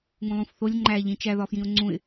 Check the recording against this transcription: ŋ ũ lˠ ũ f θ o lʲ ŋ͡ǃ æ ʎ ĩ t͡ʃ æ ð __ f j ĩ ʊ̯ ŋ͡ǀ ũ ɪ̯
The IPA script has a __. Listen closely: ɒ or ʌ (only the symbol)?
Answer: ɒ